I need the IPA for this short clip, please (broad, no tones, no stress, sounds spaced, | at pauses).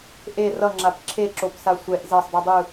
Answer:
ʔ e r ʌ ŋ͡ǁ a p ǁʰ e ǁ o p s a sʷ ɛ ʔ z ɛ sˤ dˤ u dˤ ɯ